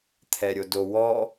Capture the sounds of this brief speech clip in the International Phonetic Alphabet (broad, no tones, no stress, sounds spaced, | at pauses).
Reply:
t̪ʰ ɛ ɾʲ o d o w ɔ